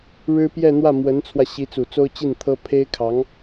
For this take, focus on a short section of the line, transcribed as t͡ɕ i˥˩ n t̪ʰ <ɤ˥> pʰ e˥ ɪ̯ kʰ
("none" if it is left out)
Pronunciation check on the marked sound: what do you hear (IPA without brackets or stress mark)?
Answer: ɤ˥